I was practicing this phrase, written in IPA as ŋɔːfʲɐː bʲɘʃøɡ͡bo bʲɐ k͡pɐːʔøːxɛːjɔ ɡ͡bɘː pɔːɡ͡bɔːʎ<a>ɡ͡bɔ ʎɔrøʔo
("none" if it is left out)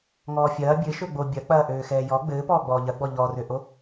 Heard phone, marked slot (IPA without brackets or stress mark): ɐ